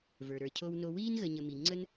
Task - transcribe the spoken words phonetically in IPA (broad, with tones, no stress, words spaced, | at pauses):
və˞˩ɾə˞˩cʰo˦wno˦ wiː˥nɣə˨ ɲə˨mi˩ŋ͡ǀə˥n